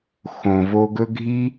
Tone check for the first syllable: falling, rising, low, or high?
low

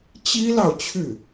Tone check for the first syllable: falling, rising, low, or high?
high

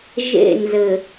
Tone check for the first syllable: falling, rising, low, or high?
falling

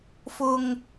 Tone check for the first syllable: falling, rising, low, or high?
low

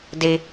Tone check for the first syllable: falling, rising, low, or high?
high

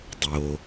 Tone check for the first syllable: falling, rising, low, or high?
low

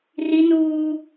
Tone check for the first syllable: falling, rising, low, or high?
high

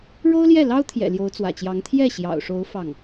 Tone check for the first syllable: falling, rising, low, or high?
high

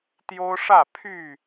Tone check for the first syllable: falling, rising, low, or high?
high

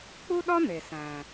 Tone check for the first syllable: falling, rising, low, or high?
high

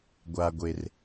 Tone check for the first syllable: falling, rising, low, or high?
low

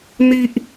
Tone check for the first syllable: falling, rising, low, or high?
high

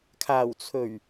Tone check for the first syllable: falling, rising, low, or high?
low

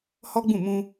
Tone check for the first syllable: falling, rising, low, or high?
high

